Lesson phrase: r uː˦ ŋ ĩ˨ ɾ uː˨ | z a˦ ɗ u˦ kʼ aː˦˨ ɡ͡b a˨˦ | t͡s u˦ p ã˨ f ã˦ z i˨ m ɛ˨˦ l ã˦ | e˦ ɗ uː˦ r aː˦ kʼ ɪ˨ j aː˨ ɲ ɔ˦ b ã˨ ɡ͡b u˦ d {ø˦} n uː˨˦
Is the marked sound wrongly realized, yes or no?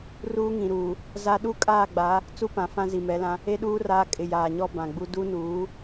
yes